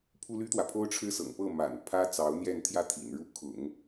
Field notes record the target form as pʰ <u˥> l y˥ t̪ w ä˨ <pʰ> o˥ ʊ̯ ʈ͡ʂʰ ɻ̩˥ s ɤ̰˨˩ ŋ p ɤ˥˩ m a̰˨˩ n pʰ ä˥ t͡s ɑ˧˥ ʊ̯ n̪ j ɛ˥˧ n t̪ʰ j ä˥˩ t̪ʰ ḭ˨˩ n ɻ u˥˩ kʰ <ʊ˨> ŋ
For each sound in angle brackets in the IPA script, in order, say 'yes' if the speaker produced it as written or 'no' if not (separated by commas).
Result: yes, yes, no